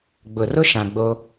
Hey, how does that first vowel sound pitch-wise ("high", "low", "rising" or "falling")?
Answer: low